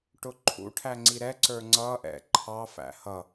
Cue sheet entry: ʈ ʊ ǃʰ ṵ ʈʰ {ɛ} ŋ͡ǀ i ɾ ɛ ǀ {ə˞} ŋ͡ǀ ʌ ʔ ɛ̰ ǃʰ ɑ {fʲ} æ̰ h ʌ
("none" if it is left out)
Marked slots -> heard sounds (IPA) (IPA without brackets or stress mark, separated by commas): æ, ə˞, f